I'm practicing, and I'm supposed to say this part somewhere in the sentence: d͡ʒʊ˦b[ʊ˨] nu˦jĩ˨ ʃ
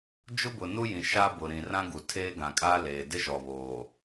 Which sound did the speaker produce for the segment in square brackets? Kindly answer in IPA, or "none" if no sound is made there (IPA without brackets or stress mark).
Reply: ʊ˨